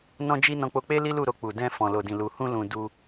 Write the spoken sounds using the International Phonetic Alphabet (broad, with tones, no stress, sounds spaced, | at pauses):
n ɔ̃˦ d͡ʒ i˦ n ɔ̃˧ k͡p o˧ k͡p e˦ l i˦ l u˦˨ ɾ o˧ k͡p u˨ d ɛ̃˧ f ɔ̃˨ l o˨ d ĩ˨ l u˨ h ũ˧ l ũ˧ d u˧